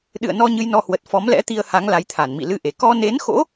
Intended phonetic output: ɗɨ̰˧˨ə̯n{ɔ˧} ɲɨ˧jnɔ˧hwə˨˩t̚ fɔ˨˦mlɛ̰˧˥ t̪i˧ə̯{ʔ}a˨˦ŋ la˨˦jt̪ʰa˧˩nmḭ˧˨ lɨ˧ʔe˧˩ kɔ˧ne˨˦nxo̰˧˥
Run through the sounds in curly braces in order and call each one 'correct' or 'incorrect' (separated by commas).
correct, incorrect